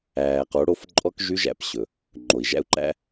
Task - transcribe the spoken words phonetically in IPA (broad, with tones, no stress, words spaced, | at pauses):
æː˨qo˨˦ ɽo˧f ǃʼɔ˧kʒy˧ʒæ̰˨p ɕɵ˨ | ŋ͡ǃo˨i̯ʒæ̰˦u̯ǃæ̰˦